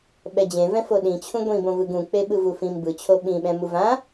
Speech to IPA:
ɓ ɛ d͡ʑ ẽ v ɛ̃ f o ɗ ĩ t͡ɕʰ ũ ɡʷ ĩ b õ v ɯ ɡ ũ k͡p e ɓ ɯ v u f ĩ m b ɯ t͡ɕʰ o ɓ ĩ ɓ ɛ̃ m u v ã

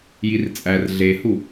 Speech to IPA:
j i r t͡sʼ æ r ɮ e h u

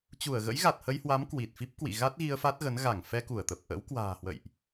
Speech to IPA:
t͡ɕ u˧˩ ə̯ ɣ ə̰˧˥ j ɣ a˨˩ t̚ h ə˧ j h w a˨˦ m k w i˨˩ t̚ f i˦˥ p̚ k w ḭ˧˨ ɣ a˦˥ t̚ ɣ i˧ ə̯ f a˦˥ t̚ ɣ ə˨˦ n ɣ a˧˩ ŋ f ɛ˧ k u˧˩ ə̯ t̪ ə˨˩ p̚ ʔ ə̰ː˧˥ w k w a̤ː˨˩ h w ə̰˧˨ j ʔ

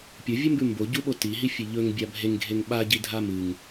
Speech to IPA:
pʲ o vʲ ɵ m b ʉ m b o ɟ u ɓ o t i ɦ i fʲ e ʎ ɵ ŋ bʲ a bʱ e ŋ ɡʱ e ŋ ɓ a ɟ i dʱ a m ɨ ŋ

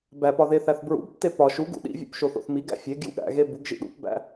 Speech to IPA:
b æ p ɒ ð e θ æ θ b ɹ ṵ b tː e p ɒ ʃ u ɡ ṵ ɗ ḭ vʲ ṵ p ʃ o θ o̰ θ m i ɡ æ̰ fʲ e ɡ j ṵ ɠ æ̰ ɣ e b u ɡ ʒ ḭ ɗ ṵ p b æ̰

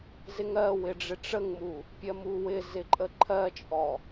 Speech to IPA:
z ɪ ŋ ɜ w ɪ ɖ͡ʐ ɪ ʈ͡ʂ ə ŋ m u | pʲ ɜ m u w ɪ z ɪ ǃʼ ə ǃʰ ɜ t͡ʃʼ ɔ

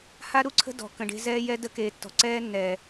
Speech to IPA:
h a˦ ɾ u˦ ǀʰ ə̤˦ d ɔ̤˨ k ə̃˨ ɖ e̤˦ z ɛː˦ j ɛ˦ d ə˦ k eː˨ tː ɔ̤˨ ǀ ɛː˦ nː ɛː˨

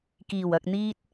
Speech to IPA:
k iː˨˩ w ɐ˨ k̚ n̪ iː˧ t̚

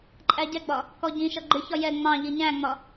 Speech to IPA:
ǃʼ æ ɟ ɛ ɡ͡b ɒ | k ɔ ɟ ĩ ʃ ʌ ɡ͡ǃ ɪ ç ɒ j ɛ ŋ͡m ɑ̃ ʎ i ɲ æ̃ ŋ͡m ɒ

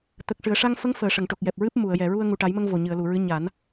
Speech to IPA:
t̪ ə˨˩ k̚ ʂ ɨ˨˩ ə̯ ʂ a˧ ŋ f ə˧˥ ŋ f əː˨˩ ʂ ə˨˩˨ ŋ ʈ o˨˩ k̚ j ɛ˨˩ p̚ ɹ ɨ˦˥ p̚ m u˨˩˨ ə̯ j ɛ˨˩˨ ɹ u˧ ə̯ ŋ u˨˩ ʈ a˨˩˦ j m ə˧ ŋ v o˨˩ ɲ ɨ˨˩˨ ə̯ l u˨˩˨ ɹ ɨ˧˥ ɲ a˨˩˦ n

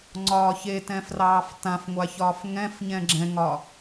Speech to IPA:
ŋ͡ǀ ɒː ç e t ɛ̃ f r ɑː f t ã f ŋʷ a ç ɒː f ŋ ɛ̃ f ɲ ɛ̃ ɡ͡ǁ ɛ̃ ŋ ɒ

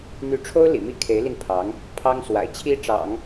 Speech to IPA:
n̪ y˧˥ ʈ͡ʂʰ o˥ ʊ̯ l ḭ˨˩ m i˥˩ kʰ e˧˥ ɪ̯ l i˧ n pʰ ɑ˧˥ ŋ | pʰ ɑ˥ ŋ s w a̰˨˩ ɪ̯ t͡ɕʰ i˥ ʈ͡ʂ ɑ̰˨˩˦ ŋ

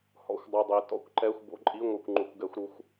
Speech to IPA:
h ɔ̰˧˩˧ xʷ dˤ u˨˩ dˤ i˩˧ t ɔ̰˧˥ kʷ ǃ ɛ˧˥˧ xʷ b o̰˧˥˧ ǃʼ i˧˥˧ ŋʷ ɯ˧˩˧ kʷ ŋ͡ǃ u˧˩˧ kʷ ɡ ɛ˧˥ xʷ ɾ u˧˥ xʷ

